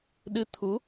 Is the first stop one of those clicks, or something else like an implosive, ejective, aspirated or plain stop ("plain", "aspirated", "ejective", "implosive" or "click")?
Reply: implosive